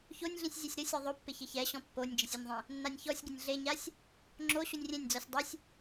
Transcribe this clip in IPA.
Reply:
ç o nʲ ɮ ĩ sʲ zʲ ɛ sʲ ɾ ʊ sʲ ɔ ðˤ o pː ɪ ç ɪ ç ɛ ɕ ɔ̃ pː o nʲ d͡ʒ ɪ sʲ ʊ nʲ ðˤ ĩ | nː a nʲ ç ɔ sʲ ɡ ɪ nʲ ɮ e ɲ a sʲ | ŋ͡ǁ o ɕ u nʲ rʲ ẽ nʲ d͡z ɔ sʲ dˤ ɪ sʲ

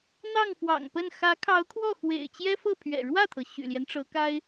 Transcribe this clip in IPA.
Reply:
n̪ ɑ˥˩ ŋ f w ɑ̰˨˩ ŋ p ə˥˩ n x ä˧˥ kʰ ɑ˧˥ ʊ̯ kʰ w ɔ˥˩ x w ḛ˨˩ ɪ̯ t͡ɕ j ɛ˥ f ɤ˥˩ pʰ ɥ ɛ̰˨˩ ɻ w ä˥˩ t̪ʰ ɤ˩ ɕ y̰˨˩ l j ɛ˦ n ʈ͡ʂ ɤ˧˥ k a˥ ɪ̯

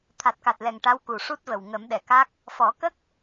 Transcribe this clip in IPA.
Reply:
t̪ʰ a˨˩ t̚ k a˨˩ t̚ l ɛ˨˩ ŋ ʈ a˧˥ w k u˨˩ ʂ u˦˥ t̚ v ə˨˩ w ŋ ə˨˩˦ m ɗ ɛ˨˩˨ k a˦˥ k̚ | f ɔ˨˩˦ k ə˦˥ k̚

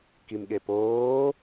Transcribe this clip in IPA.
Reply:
k i m ɠ e p oː

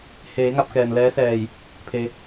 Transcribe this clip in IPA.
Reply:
h eː˩˧ ŋ a˧ p̚ k ɛː˩ n l ɛː˧˥ s ɛː˧˩ j | pʰ e˧

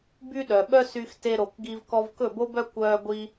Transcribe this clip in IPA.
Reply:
b y˥ ɗ œ˩ ɓ œ˥ s y˧ x t e˧ ɾ o˩ k ɡ i˧ v k ɔ˧ v k ɵ˥˩ b o˥ b œ˥ kʷ œː˧ ɡʷ i˧

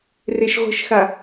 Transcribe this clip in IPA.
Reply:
r e ʃ ʁʷ ə̤ ʃ x a

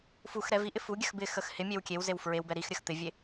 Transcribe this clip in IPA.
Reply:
f u x ɾ ɛ v i ʔ ɪ f u ɡʲ ə x b ɪ x ə x h ɪ mʲ e w kʲ e w z e w f ɹ e w b ɛ ɾ i x ɾʲ ə x t̪ ɪ vʲ e

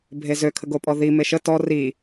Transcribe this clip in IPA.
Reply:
bʱ e z ø kʰ ə ɡ o pʼ ɔ ð i m e ʃ ə t ɔ r i

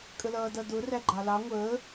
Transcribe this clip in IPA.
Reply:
kʼ ə l ʌː d ʌ d ʊ r æ ɡ͡ǃ ɑ l ɑ ŋʷ əː

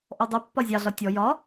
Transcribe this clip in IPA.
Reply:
ʔ ɔ dˤ ɛ pː ɒ zʲ ɑ ɮ ɒ tʲ ɔ j ɒ

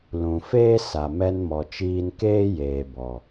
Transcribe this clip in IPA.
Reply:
l ũ˨ f eː˦ s a˨ m ɛ˧ n m ɔ˨ t͡ʃ iː˧ n k eː˦ j eː˨ b ɔ˨

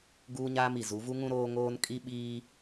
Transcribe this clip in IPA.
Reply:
ɡ uː˦ ɲ aː˦ m i˨ z u˨˦ v u˦ ŋ ũ˦ ɾ oː˦ ŋ oː˦ n kʼ i˦ ɓ iː˦

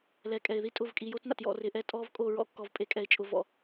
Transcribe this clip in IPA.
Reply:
l ɛ˨ kʼ ɛ˨ ɪ̯ ð i˦ tʼ ʊ˦˨ v kʼ i˨ j o˦ t n a̰˨ t j ɔ̰˦˨ r ɪ˨˦ ʔ ɛ˦ tʼ ɔ˦ v kʼ o˦˨ ɹ ɔ̰˦ kː ɔ˨ v pʼ e˨ kʼ ɛ˨ ɪ̯ t͡ʃʼ ʊ˨ v ɔ̰˨

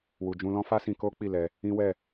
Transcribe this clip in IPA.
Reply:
w u˨ d͡ʒ ũ˧ l ɔ̃˦ f a˦ s ĩ˧ k o˦ k͡p i˦˨ l ɛ˧ | ĩ˦ w ɛ˦˨

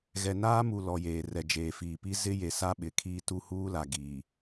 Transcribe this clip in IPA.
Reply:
ɣ ɛ˨ n aː˦ m u˨ l ɔ˨ j eː˨ r ɛ˨ d͡ʒ eː˨ f iː˨ p i˦ z ɪ˦ j e˨ s a˦ ɓ ɪ˨ kʰ iː˦ t u˦ h uː˦ l a˨ ɡ iː˨

